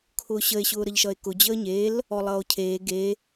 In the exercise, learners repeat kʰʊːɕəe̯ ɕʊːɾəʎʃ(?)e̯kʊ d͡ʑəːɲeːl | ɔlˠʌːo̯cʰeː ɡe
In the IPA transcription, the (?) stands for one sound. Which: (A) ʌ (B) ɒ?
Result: A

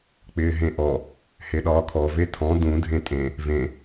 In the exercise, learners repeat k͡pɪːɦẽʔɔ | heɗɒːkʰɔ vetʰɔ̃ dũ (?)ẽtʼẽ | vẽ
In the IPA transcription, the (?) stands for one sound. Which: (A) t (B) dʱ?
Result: B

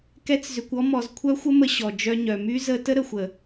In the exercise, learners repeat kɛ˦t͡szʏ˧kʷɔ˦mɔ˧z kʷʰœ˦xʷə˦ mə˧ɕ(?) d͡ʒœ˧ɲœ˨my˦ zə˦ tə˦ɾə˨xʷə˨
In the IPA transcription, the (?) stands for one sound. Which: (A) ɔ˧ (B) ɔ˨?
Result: B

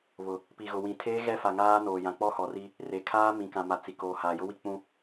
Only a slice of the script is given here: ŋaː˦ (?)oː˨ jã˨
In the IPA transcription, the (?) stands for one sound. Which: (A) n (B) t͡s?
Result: A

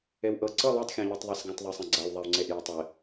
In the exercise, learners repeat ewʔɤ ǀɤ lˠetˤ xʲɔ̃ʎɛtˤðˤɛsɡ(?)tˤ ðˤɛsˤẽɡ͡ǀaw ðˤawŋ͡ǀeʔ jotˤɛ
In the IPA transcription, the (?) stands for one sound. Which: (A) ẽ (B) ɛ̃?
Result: B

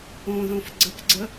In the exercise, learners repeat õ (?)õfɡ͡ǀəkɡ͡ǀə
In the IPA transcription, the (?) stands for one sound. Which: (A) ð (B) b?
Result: A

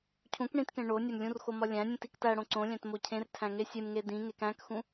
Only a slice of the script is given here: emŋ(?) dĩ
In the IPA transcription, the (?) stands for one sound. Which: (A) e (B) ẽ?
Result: A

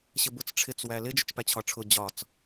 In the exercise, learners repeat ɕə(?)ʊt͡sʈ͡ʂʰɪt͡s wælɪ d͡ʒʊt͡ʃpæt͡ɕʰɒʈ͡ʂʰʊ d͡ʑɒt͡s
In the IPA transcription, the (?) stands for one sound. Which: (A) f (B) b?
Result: B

